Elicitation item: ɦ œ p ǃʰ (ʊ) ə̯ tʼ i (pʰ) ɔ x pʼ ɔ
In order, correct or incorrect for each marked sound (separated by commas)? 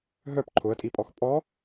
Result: correct, incorrect